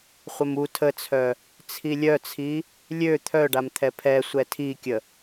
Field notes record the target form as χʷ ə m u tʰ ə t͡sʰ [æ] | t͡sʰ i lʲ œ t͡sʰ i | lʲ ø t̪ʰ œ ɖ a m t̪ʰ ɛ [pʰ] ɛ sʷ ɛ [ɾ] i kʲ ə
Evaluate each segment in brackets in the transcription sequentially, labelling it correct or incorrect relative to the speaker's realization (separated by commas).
incorrect, correct, incorrect